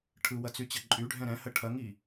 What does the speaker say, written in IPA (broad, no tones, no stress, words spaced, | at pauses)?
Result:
ʈʰɯwɐt͡syt͡ɕɐ ǃʼyɖʱɛ̃ ɾɛ̃hə ʈʰɐŋi